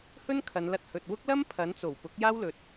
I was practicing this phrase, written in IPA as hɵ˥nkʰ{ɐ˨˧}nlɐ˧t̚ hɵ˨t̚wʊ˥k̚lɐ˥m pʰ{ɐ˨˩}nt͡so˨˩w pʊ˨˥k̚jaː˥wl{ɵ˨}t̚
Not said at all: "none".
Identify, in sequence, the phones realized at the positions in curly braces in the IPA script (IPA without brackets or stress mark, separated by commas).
ɐ˨˧, ɐ˨˥, ɵ˨